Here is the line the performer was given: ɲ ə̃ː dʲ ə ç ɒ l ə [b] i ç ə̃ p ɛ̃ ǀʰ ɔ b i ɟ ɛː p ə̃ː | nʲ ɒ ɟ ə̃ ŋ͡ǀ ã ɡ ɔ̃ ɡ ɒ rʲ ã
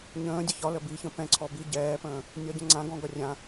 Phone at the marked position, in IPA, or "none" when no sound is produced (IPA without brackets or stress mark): b